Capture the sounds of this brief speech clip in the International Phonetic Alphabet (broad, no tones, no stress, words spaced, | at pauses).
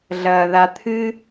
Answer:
ɮɐːðat̪ʰɨ